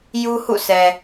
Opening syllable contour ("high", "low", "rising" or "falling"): high